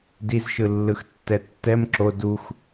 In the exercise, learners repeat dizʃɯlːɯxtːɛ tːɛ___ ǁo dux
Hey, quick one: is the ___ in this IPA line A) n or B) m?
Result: B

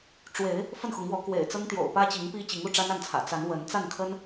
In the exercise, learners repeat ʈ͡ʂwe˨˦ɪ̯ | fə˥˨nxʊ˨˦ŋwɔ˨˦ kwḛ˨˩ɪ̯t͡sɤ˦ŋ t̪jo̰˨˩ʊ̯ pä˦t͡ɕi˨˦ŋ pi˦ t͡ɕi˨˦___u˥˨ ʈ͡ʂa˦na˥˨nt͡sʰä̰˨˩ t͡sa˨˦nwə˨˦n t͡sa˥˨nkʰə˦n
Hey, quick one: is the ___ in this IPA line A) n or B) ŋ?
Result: B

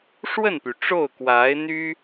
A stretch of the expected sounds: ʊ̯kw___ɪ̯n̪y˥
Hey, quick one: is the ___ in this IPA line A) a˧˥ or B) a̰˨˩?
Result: A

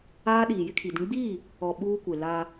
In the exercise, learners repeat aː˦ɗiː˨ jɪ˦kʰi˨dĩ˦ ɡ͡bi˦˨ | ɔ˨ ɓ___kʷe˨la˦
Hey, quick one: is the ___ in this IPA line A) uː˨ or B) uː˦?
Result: B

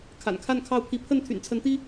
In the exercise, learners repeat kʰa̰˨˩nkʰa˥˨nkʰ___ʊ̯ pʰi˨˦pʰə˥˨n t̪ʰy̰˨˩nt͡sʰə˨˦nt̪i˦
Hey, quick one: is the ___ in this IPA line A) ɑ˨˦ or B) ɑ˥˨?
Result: B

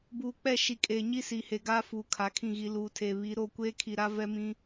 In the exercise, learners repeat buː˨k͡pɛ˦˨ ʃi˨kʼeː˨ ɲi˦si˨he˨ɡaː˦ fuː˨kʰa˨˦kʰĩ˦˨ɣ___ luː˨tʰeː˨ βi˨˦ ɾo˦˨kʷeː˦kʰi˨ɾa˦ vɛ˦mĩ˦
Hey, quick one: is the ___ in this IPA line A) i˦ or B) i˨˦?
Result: B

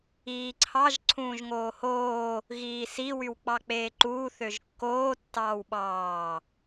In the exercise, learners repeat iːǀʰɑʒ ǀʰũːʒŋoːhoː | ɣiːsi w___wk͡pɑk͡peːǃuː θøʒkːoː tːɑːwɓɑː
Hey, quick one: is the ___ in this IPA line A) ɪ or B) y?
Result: B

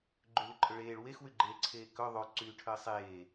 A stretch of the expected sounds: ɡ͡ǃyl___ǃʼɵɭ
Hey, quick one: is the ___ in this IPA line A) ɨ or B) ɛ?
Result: A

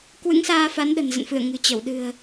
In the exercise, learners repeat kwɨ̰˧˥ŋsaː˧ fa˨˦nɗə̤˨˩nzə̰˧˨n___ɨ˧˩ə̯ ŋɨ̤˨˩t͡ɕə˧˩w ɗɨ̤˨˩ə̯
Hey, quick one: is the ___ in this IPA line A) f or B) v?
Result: A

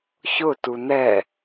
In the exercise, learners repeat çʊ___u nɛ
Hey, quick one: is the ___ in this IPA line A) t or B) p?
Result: A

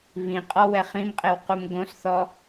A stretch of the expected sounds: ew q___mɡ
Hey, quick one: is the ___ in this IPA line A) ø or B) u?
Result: B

